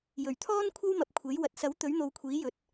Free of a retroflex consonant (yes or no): yes